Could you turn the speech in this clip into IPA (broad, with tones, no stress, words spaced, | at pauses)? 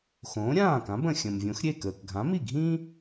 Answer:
xõː˩˥ɾʲãː˥˩kã˩˥b ə̃˩xʲə̃˩mvʲõ˩˥xɾʲe˥˩ kəː˩kɡʱã˩˥mi˥˩ɡʱĩː˥